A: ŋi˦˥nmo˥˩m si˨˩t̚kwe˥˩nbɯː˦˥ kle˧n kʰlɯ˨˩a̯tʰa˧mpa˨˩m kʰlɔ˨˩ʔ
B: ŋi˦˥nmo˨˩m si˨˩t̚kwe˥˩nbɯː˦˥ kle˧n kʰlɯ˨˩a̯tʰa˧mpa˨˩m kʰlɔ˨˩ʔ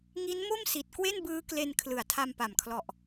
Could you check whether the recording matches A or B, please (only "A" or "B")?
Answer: A